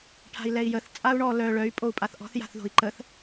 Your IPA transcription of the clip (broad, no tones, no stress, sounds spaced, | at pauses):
ʈʰ a̤ i̯ l ɛ i̯ j ə θ t͡sʼ a u̯ ɳ ɔ l œ ɭ œ y̯ pʼ o u̯ pʼ a θ ʔ ɔ̤ θ j a̤ θ ð o̤ i̯ ǃ ə θ